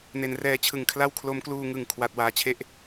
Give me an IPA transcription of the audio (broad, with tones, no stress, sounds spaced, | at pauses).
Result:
n e˩˦ n r ɛː˧ t͡ɕʰ ɯ˨˩ ŋ kʰ l a˥˩ w kʰ l o˦˥ m k l uː˧ ŋ ɯ˨˩ ŋ kʰ w a˨˩ t̚ w aː˧ t͡ɕʰ e˥˩ ʔ